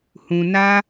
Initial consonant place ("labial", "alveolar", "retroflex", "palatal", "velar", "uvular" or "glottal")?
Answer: glottal